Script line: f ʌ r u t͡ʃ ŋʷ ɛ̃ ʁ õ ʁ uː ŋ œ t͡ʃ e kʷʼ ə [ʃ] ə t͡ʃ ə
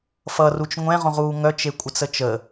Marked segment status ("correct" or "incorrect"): incorrect